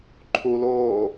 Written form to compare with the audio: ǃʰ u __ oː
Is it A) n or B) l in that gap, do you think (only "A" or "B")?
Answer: B